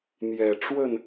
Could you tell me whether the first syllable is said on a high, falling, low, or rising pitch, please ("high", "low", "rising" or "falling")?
low